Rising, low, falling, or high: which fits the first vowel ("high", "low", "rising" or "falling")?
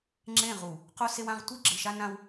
falling